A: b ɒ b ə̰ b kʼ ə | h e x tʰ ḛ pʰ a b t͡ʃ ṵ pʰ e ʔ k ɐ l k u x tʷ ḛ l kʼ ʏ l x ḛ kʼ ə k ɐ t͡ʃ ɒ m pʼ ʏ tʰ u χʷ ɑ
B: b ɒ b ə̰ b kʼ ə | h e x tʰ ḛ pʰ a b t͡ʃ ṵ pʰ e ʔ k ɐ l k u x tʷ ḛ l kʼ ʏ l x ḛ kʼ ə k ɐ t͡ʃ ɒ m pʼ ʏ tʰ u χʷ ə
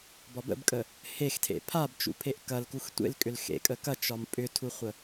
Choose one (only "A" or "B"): B